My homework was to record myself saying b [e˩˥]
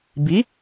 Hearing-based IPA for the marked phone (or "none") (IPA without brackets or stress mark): i˩˥